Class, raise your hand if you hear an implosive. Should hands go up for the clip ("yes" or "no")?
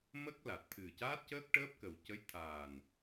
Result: no